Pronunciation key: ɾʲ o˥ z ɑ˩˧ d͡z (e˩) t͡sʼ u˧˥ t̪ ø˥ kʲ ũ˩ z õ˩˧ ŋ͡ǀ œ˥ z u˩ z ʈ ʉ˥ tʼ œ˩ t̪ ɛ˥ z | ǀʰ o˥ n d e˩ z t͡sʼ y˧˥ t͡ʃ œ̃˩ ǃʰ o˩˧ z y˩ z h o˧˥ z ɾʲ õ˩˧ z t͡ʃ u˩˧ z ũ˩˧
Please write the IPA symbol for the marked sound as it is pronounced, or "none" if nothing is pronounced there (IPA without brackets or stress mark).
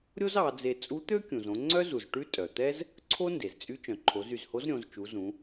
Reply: e˧